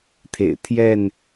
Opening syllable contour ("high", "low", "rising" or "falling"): low